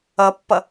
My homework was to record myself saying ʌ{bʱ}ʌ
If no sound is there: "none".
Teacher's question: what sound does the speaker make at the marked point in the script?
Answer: pː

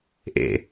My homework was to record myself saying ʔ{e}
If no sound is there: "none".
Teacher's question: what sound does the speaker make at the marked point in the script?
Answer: ḛ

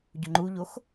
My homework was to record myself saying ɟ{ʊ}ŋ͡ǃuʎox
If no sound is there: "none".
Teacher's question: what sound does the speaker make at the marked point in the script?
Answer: ʊ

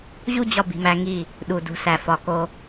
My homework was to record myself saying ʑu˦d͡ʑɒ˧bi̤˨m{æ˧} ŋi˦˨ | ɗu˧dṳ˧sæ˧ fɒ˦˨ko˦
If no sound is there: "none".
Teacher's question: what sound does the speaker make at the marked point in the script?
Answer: æ˧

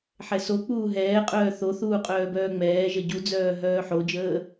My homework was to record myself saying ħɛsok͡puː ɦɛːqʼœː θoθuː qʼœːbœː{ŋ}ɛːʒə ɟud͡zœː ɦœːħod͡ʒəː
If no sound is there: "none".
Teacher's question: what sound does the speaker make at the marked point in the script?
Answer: ŋ͡m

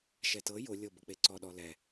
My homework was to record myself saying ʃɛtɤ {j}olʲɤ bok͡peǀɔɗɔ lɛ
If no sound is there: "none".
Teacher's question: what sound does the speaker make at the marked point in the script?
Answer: j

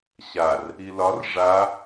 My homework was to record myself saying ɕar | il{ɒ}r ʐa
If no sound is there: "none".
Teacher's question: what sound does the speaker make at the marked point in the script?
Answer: ɒ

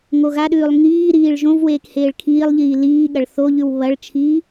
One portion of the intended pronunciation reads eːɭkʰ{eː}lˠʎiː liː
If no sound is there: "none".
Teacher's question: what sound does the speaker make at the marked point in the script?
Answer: iː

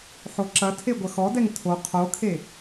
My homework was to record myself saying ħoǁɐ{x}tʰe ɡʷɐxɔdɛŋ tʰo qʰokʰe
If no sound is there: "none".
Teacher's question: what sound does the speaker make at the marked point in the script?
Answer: none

